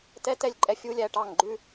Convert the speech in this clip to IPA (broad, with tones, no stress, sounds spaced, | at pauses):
t ɛ˦ t ɛ˦ lʲ ǃʼ ɛ˦ fʲ u˦ lʲ æ˨ ʈ ɑ˦˨ ŋ ɡ͡ǃ ʉ˦